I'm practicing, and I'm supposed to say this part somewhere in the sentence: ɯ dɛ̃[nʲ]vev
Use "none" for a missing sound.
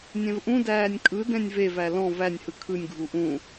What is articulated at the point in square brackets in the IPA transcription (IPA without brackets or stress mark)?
nʲ